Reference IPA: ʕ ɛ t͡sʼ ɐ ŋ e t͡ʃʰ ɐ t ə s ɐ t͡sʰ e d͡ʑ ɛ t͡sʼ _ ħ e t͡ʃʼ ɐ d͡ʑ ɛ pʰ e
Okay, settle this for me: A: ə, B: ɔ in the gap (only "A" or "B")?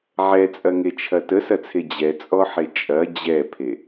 B